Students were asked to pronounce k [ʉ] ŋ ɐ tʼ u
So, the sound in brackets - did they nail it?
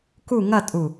no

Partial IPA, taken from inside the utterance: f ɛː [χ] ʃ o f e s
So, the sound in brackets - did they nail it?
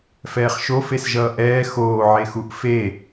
yes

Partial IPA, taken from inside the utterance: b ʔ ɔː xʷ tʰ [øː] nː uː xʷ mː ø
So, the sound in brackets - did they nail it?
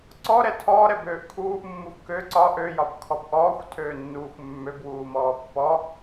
yes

